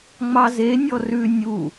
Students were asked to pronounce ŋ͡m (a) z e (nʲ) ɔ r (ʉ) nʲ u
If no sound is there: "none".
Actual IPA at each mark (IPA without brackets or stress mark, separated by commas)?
ɑ, nʲ, ʉ